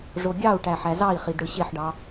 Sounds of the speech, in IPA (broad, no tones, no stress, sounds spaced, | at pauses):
ʐ o ɡʲ ɑ u̯ ʈ æ ħ æ z ɑ i̯ χ i d ɽ ɯ ɕ e ħ ɖ ɑ